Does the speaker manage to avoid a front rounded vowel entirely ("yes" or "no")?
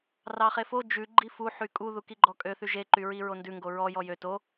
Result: no